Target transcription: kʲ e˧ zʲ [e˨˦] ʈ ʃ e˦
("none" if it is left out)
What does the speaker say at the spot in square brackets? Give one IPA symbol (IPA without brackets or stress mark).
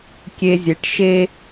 e˨˦